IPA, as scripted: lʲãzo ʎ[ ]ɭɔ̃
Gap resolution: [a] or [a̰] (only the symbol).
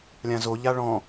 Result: a